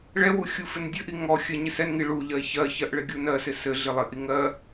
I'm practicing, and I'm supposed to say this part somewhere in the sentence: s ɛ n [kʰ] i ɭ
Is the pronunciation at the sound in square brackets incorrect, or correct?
incorrect